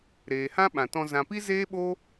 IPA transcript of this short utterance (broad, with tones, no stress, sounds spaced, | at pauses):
ɾ eː˨ h ã˦ ɓ ã˨ t ɔ̃˧ z ã˨ p i˦ z eː˦ ɓ o˦